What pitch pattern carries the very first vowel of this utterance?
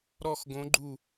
falling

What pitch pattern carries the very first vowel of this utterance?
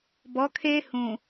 rising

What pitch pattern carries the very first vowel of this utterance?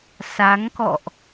rising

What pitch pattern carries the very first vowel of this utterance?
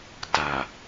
low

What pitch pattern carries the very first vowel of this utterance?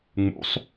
rising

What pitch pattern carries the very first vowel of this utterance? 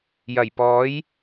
low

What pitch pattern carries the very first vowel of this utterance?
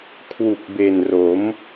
low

